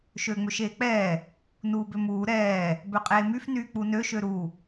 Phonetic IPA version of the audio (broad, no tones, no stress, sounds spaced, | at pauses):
ʃ øː ŋ͡m ø ʃ eː k͡p ɛː | n uː b ø m uː ɾ ɛː | b ø qʼ eː m y f n yː k͡p u n ø ʃ ø ɾ u